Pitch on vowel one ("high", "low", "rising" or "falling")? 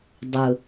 low